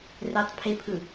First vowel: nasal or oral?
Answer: oral